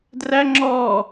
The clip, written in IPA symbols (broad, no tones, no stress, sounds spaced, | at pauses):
d r æ ŋ͡ǁ ɔː